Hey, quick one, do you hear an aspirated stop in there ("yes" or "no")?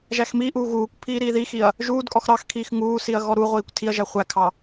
yes